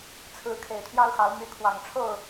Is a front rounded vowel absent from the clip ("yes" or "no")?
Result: no